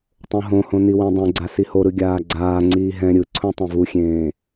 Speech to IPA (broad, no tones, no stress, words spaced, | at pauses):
tˤõɦõhõ niwẽdˤẽɡ͡ǀa sihoɾɯ ɡʲaːɡ͡ǀaːŋ͡ǀiː ɦɛ̃ ɾʲɯǀʰõ tˤẽvuxʲẽː